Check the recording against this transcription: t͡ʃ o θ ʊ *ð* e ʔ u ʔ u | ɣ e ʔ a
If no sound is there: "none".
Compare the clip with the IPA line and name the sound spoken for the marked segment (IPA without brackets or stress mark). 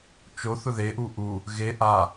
ð